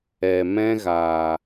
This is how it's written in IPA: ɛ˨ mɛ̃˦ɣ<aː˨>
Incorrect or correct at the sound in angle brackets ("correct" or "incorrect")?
correct